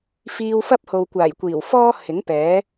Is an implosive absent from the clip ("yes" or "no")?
yes